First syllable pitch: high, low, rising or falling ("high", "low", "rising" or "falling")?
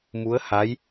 rising